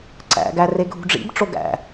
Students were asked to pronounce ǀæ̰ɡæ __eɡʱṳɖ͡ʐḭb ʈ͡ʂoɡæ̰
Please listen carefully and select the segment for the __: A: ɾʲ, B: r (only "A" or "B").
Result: B